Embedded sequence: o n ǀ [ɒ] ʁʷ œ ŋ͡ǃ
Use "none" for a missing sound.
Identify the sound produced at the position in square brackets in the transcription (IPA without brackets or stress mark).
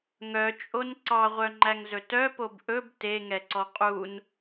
ɑ